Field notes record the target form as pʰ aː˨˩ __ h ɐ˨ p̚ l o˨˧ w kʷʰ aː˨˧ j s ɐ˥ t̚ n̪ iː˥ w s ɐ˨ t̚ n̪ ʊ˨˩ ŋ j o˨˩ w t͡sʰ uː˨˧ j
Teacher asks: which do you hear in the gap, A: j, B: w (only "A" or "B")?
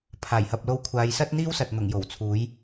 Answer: A